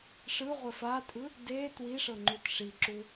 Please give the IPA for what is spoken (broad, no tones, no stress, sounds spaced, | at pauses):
ʂ ɯ ʁʷ ɛ f a tʼ ɯ | d e t w i ʂ ɤ ŋ͡ǃ u t ʂ i ǁ u